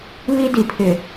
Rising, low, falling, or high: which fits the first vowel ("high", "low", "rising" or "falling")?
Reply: high